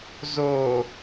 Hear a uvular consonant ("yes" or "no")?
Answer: no